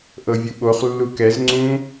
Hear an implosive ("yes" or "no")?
yes